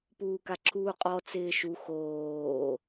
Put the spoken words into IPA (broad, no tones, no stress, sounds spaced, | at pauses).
p uː k a ǁʰ uː qʼ ɔ t͡s ɪː ʃ u x oː